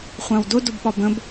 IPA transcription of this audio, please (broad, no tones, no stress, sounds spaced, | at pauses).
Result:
χʷ ã w d ʊ d ʊ b ɓ ɒ b ə̃ b